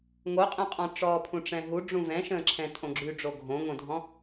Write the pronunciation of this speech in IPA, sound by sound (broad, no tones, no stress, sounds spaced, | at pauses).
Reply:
ŋ o qʼ ɛ̃ qʼ ɔ̃ ʈ͡ʂ ɔː pʰ ũ ʈ͡ʂ ɛ̃ ɦ u ɖ͡ʐ ũ v ɛ̃ ʃ ə̃ː ǁʰ ɛ̃ tʼ õ ɡ͡ǁ y ɖ͡ʐ o ɡʱ õ ŋ õ dʱ ɔ̃